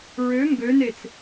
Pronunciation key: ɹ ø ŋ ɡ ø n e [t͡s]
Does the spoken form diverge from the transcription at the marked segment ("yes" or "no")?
no